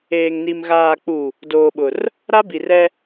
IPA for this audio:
eː˨ ŋ n i˨ m ɣ aː˨ k͡p u˨ | d oː˨ ɓ ʊ˨ r | ɾ a˦ b i˨ r ɛ˦

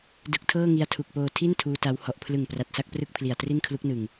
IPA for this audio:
d ɯ˨˩ k̚ tʰ ɤː˥˩ ŋ i˧ a̯ tʰ u˨˩ k̚ p oː˧ tʰ i˥˩ n tʰ uː˦˥ t a˦˥ w h ɔ˨˩ ʔ pʰ l ɯ˨˩ ŋ p r a˨˩ t̚ s a˥˩ k̚ p r ɯ˥˩ k̚ pʰ l i˨˩ a̯ t r i˥˩ n kʰ l u˦˥ k̚ n ɯ˨˩ ŋ

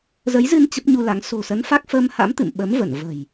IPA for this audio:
z ə˨˦ j z ɨ˧ n t͡ɕ ə˦˥ p̚ ɲ u˧ l a˨˦ ŋ s o̤˨˩ s ə˨˦ n f a˦˥ k̚ f əː˧ m h a̰˧˥ m t̪ ɨ̰˧˨ m ɓ ə˨˦ m v ə˧˩ n v ə̤˨˩ j

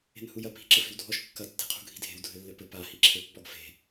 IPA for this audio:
e̤ n h u j ɐ p i̤ ǁ ɘ f e̤ w dʱ ɔ ʃ kː ɐ tː e̤ qʰ ṳ ɡʱ i̤ dʱ e̤ w dʱ ɘ lː ɘ p ɘ p a h i ǁʰ ɘ pː ɔ ɡ f e̤

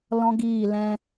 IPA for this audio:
l ɔ̃˦ ɡ iː˦˨ l ɛ̃˧

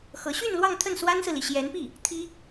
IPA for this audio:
x ɤ˧˥ ɕ y˥˧ n l w ɑ˥˧ ŋ t̪ʰ ə˥˩ n s w a˥ n s ɹ̩˨ l i˩ ɕ j ɛ˧˥ n p i˥˩ | t̪ʰ i˥

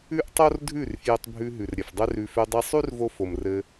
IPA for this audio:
ʉ˦ ʔ tˤ o˦ r dʱ ʉ˦˨ r f j ɘ˧ tˤ bʱ ʉ˧ ɦ ʉ˨ r ɾʲ ɘ˨ f dˤ ø˦ r ʉ˧ f ø˧ dˤ i˧ sˤ ʉ˦ r v o˧ f o˨ m r ɘ˧

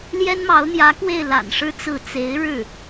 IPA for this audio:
l j ɛ˥ n m ɑ˧˥ ʊ̯ n̪ j ä˧˥ k w e˥˩ ɪ̯ l a̰˨˩ n ʂ ɻ̩˥ t͡s ɹ̩˥˩ t͡s e˧˥ ɪ̯ ɻ ɻ̩˥˩

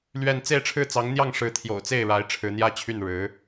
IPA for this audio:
l ɥ ɛ˥˧ n t͡s e˥˧ ɪ̯ ʈ͡ʂʰ ɻ̩˥˩ t͡s ɑ˧˥ ŋ n̪ j ɑ˥˩ ŋ ʂ ɻ̩˧˥ t̪ʰ j o̰˨˩ ʊ̯ t͡s e˥˩ ɪ̯ ɻ a˧˥ ɪ̯ ʈ͡ʂʰ ɻ̩˧˥ n̪ j ä˥ t͡ɕʰ y˥˩ n ɻ ɻ̩˧˥

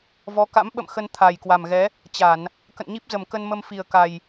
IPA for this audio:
v ɔ˨˦ k a̰˧˥ m ɓ ə̰˧˨ m x ə˧ n t̪ʰ a˨˩ j k w a˨˩ m ɣ ɛ˨˦ | t͡ɕ a˧˩˨ n | k ə̰˧˨ n ɲ i˦˥ p̚ z ə˨˩ m k ə˧ n m ə˧ m f i˨˩ ə̯ k a˨˩ j

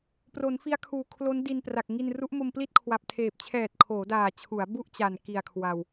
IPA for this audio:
p r o˩˦ n f i˦˥ a̯ kʰ uː˨˩ kʰ l o˦˥ n d i˧ n p r a˨˩ k̚ ŋ i˧ n r u˦˥ ʔ m o˧ m p l i˥˩ t̚ kʰ w a˨˩ p̚ tʰ eː˨˩ p̚ t͡ɕʰ ɛː˨˩ t̚ kʰ oː˩˦ d aː˨˩ t͡ɕʰ u˩˦ a̯ b u˥˩ ʔ t͡ɕ a˨˩ n k i˨˩ a̯ kʰ w a˨˩ w

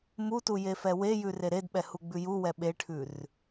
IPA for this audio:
m u t u j e f ɛ w e j ʉ r e ɾ e d ɓ ɛ h u ɡ͡b ʉ j u w ɛ ɓ e ʈʰ ʉ r

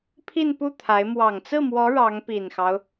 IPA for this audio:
pʰ i˥˧ n p u˥˩ t̪ʰ a˧˥ ɪ̯ m w ɑ˨˩ ŋ t͡s ɹ̩˥˩ m w ɔ˧˥ ɻ ɑ˧˥ ŋ p i˨˩ n x ɑ˦ ʊ̯

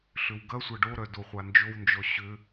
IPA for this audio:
ɬ ʏ w ɡ ɐ sʷ ɐ ɖ o ɾ œ d o χʷ a n d͡ʒ o w n d͡ʒ ɔ ɕ ʏ

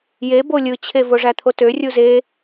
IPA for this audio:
j e b o lʲ ɯ t͡ɕʰ e v o ʐ æ t̪ʰ o t ø rʲ u z e

